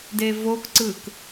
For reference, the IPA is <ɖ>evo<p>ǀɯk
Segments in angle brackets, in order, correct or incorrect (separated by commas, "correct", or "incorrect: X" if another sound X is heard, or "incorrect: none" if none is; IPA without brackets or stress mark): incorrect: d, incorrect: k